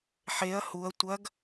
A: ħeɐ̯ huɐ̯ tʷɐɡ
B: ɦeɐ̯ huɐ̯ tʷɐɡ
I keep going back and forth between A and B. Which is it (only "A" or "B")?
A